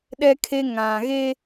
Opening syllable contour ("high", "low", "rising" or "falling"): high